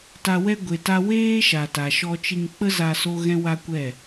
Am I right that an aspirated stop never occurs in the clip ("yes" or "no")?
yes